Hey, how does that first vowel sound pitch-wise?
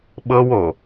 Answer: high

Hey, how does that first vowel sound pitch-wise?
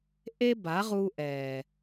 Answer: high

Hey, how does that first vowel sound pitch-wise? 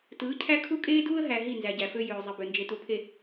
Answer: rising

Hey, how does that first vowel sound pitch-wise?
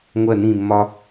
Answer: falling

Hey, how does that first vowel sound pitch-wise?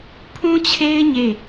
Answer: high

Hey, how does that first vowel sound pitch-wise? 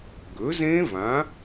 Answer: rising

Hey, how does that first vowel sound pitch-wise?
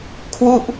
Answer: falling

